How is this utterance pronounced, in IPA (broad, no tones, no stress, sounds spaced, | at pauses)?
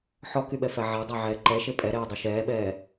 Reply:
ħ ɔ k y ɓ ɛ f æ ʕ a dˤ a ʕ ɛː ǃ ɛ ʃ e pʼ ɛ ɾ ɛː dˤ y ʃ ɛː ɓ ɛː